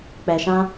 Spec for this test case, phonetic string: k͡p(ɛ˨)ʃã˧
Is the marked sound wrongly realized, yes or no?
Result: no